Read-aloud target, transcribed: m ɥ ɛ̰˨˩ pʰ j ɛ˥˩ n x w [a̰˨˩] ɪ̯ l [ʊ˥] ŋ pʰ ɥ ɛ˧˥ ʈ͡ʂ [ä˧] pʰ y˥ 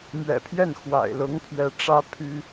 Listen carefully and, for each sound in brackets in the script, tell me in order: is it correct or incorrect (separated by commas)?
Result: correct, incorrect, incorrect